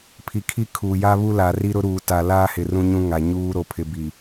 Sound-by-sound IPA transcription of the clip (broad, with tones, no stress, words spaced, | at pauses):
pʰi˨kʰi˦ kʰuː˨ja˦βu˦ la˨ri˦ ɾʊ˦ɾuː˨ ta˨laː˦hɪ˨ rũ˦ɲũ˦ŋa˨ɲuː˦ ɾo˨pʰɪ˨ bi˨